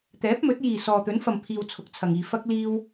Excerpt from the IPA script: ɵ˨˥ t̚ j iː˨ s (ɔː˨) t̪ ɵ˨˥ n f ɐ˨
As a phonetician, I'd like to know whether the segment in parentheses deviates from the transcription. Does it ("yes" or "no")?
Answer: no